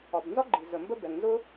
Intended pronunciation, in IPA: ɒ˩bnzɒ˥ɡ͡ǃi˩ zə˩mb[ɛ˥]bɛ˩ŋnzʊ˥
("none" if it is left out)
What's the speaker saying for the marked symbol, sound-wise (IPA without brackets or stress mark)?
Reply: ə˥